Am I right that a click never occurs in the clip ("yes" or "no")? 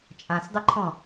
no